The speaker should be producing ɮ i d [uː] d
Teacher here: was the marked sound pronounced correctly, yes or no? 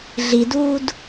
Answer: yes